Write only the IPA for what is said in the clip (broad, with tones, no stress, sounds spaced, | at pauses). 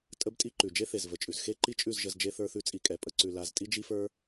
tʼ ə˦ b tʼ i˦ ǃ ʉ˨ d͡ʒ e˦ θ e˨ z v ə˨ t͡ʃʼ ʉ˨ z x e˦ ǃ i˦ t͡ʃʼ ʉ˦˨ z ʒ ə˧ z d͡ʒ e˦ θ ə˞˦ θ ʉ˦ t͡sʼ i˧ kʼ ɛ˨ pʼ ə˦ ǀ ʉ˧ l a˦ z tʼ i˦ d͡ʒ i˦ f ə˞˦